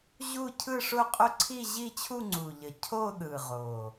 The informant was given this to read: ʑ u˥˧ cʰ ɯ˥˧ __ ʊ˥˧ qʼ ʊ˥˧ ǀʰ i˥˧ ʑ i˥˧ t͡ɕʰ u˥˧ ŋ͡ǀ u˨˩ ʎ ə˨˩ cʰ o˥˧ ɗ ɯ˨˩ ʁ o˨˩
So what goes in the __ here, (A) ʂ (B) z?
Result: A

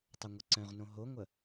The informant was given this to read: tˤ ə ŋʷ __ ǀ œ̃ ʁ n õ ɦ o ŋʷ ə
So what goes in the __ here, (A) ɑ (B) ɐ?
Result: B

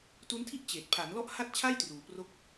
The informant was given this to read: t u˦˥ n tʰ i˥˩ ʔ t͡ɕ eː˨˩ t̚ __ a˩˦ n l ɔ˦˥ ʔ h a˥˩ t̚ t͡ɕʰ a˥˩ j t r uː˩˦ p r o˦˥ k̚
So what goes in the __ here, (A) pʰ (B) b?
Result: A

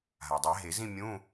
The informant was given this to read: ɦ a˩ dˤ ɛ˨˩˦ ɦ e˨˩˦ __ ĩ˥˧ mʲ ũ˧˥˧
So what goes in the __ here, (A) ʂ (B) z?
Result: B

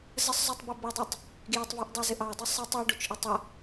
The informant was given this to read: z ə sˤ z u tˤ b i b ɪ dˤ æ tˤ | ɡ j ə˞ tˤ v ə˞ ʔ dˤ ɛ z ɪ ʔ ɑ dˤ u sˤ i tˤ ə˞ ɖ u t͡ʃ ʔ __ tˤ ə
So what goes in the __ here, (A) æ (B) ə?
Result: B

